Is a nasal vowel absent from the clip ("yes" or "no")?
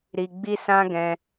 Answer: no